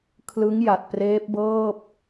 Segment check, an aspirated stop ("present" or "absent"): present